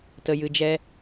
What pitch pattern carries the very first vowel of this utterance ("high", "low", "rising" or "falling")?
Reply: low